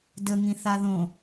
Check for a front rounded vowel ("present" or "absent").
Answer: absent